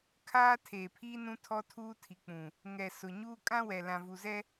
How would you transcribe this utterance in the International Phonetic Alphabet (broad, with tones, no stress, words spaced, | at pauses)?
kʰaː˦ tʰeː˨pʰiː˦ nũ˦ tʰɔ˦tʰuː˦tʰi˨k͡pũ˨ | ŋɛ˨ sʊ˨ɲuː˦ kʼã˦wɛ˨ lã˨vu˨zɛ˦